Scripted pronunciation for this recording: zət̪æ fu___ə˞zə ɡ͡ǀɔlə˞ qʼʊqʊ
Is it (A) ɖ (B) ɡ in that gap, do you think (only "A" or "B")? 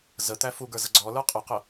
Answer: B